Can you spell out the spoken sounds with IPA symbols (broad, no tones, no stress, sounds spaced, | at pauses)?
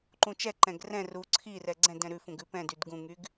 ǃ ũ t͡ʃ ɛ ǃ ɛ̃ ɡ r ɛ̃ r u ǀʰ i r ɛ ɡ͡ǀ ɛ̃ d ɛ̃ ɾ ʉ f ũ ɡ ʉ p ɛ̃ d y d ɡ ũ ŋ y ɡ